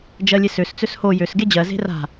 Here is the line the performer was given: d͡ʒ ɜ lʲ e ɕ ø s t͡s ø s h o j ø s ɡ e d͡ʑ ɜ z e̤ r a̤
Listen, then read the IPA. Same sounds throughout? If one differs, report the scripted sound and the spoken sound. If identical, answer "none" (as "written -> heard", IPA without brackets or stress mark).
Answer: ɕ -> s